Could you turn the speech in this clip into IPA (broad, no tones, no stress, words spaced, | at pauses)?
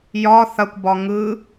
jɒ θɐkʷ bɒŋɯ